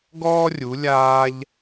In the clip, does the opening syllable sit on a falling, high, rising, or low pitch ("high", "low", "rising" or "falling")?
high